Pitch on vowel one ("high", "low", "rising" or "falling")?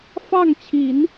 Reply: falling